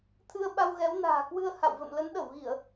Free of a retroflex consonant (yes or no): yes